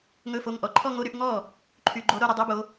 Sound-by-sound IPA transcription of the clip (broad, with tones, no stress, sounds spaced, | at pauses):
ŋ ɵ˧˥˧ f o˧˥˧ ŋ ʔ ɔ˨˦ ǃʰ ɔ˥˧ ŋ o˧˥˧ ɾ y˨˦ ʔ ŋ ɔ˥˩ | ǃʰ y˨ ɡ͡ǃ o˨˦ ɾ o˥˧ ɾ ɵ˥˧ dˤ y˧˥˧ b o˨˦